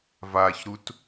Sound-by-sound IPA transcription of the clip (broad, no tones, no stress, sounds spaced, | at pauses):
v a ç ɾ u t